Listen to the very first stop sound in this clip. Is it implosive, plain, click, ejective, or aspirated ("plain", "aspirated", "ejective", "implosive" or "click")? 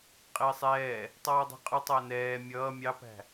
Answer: ejective